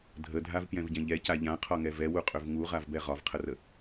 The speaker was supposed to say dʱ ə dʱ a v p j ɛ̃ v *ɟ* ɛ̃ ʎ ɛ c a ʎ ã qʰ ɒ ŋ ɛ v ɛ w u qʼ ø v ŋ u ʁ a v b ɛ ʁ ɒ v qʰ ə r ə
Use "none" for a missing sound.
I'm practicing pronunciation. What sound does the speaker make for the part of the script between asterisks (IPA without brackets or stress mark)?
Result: ɟ